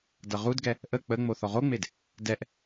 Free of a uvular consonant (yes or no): no